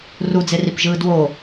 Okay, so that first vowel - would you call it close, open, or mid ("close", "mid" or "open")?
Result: close